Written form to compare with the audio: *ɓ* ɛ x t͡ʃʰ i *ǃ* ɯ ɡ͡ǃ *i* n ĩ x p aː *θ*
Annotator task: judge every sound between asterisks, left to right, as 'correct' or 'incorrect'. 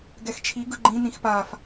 incorrect: ɡ, incorrect: ɡ, incorrect: ĩ, incorrect: f

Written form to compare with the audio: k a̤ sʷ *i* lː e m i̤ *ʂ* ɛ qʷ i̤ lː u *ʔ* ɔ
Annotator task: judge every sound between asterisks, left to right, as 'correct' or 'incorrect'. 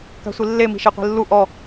correct, incorrect: ʃ, correct

